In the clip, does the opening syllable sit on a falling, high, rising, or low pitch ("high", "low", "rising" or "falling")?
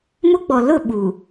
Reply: high